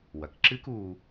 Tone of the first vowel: low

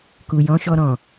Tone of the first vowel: low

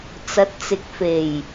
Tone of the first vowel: rising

